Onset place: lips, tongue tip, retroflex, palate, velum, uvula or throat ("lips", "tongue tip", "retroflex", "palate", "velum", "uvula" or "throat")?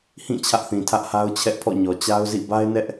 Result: throat